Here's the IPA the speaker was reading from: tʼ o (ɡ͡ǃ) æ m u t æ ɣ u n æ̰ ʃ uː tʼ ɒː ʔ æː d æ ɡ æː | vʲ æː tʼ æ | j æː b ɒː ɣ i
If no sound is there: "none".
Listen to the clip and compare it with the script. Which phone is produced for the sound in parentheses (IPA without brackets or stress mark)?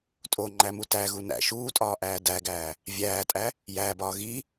ŋ͡ǃ